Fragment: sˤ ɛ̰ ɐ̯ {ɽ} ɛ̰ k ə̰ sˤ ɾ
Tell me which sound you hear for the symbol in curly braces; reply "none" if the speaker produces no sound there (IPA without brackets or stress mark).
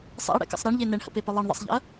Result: ɽ